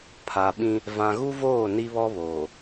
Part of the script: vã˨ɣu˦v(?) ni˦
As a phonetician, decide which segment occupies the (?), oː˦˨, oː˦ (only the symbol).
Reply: oː˦˨